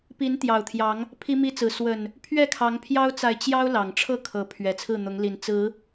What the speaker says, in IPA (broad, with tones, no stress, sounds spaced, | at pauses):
p i˨˦ n t̪ j ɑ˨˩ ʊ̯ t̪ʰ j ɑ˨˦ ŋ | pʰ i˦ m i˦ t͡s ɹ̩˨˦ s w ə˨˩ n | pʰ ɥ ɛ˥˨ kʰ ɑ˨˦ ŋ pʰ j ɑ˦ ʊ̯ t͡s a˨ ɪ̯ t͡ɕ j ɑ˦ ʊ̯ l ɑ˨˩ ŋ ʈ͡ʂʰ ɤ˥˨ kʰ ɤ˨˦ pʰ ɥ ɛ˨˩ t͡sʰ ɹ̩˥˨ n̪ ʊ˨˦ ŋ l i˨˩ n t͡s ɹ̩˨˦